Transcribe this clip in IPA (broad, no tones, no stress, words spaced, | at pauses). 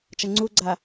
t͡ʃɐŋ͡ǀuɡ͡ǀa